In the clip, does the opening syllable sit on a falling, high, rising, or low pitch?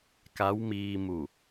rising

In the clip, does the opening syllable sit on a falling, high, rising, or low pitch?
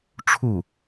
falling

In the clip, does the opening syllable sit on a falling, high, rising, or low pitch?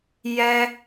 high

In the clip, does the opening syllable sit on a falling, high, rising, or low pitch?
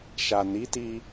low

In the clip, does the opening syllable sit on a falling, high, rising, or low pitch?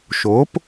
rising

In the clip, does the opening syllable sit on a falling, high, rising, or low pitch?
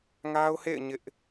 high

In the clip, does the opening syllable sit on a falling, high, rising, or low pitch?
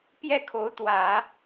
falling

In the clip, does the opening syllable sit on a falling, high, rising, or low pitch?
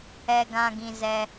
high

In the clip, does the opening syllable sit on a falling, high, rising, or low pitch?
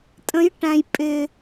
rising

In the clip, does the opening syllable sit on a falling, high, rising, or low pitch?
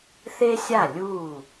high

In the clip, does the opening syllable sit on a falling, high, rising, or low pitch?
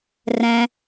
low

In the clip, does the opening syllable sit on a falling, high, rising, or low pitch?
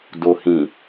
low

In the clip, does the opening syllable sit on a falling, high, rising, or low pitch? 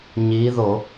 rising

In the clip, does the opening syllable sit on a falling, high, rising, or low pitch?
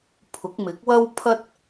rising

